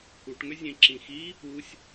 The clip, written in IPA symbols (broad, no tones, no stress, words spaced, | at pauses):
kuʈŋʏ zʲẽǁĩxi | usʲ